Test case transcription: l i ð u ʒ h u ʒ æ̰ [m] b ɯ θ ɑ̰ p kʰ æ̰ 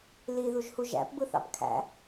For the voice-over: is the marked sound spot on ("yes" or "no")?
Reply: no